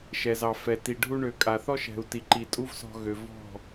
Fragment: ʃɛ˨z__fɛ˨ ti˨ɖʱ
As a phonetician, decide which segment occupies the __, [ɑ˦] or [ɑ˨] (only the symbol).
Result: ɑ˨